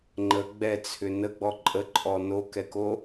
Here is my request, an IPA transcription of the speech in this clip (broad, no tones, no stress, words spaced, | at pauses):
ŋ͡ǃə ɡ͡bɛt͡sʰʏ nəɡ͡bɔ ǃʼəǃʼɔ nokɛko